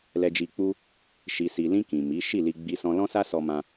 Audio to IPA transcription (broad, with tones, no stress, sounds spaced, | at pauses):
l ɛ˧ d͡ʒ i˧ k͡p u˦ | ʃ i˨ s i˨ l ĩ˧ k ĩ˨ m i˨˦ ʃ i˦˨ l i˧ ɡ͡b i˧ s ɔ̃˧ l ɔ̃˦ s a˦ s ɔ˧ m ã˧